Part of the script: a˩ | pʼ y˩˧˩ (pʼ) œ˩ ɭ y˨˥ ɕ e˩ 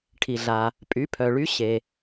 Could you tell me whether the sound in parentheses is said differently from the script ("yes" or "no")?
yes